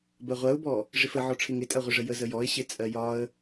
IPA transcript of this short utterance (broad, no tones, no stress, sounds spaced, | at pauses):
b ɜ ʁʷ ɜ ʊ̯ b ɔ | ʐ ɪ f ə ʕ ɔ ʈ͡ʂʰ ɪ ŋ ɪ tʼ ɜ ʁʷ ɪ ʐ ə j ə z ə j ɔ ɪ̯ ɕ ɪ t͡sʼ ɜ j ɒ ə̯